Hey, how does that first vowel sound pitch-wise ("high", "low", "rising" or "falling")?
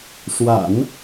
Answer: low